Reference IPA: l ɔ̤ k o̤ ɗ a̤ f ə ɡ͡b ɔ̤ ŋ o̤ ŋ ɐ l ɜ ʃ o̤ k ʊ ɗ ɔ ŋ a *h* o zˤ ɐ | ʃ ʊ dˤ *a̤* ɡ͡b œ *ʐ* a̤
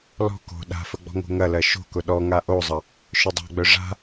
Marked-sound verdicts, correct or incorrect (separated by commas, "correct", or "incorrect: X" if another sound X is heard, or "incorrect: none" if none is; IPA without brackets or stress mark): incorrect: ʔ, correct, correct